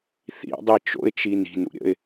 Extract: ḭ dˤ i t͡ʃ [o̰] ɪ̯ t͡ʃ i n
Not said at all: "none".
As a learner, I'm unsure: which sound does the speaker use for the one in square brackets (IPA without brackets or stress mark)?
o̰